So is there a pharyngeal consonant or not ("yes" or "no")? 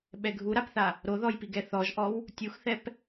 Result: no